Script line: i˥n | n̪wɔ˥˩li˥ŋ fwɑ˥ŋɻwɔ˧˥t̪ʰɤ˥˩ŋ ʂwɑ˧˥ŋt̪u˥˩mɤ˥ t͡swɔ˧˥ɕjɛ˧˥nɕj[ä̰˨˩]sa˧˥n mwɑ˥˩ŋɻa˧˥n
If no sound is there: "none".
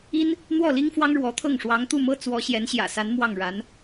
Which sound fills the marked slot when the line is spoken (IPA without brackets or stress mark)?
ä̰˨˩